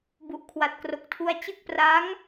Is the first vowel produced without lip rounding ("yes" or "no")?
no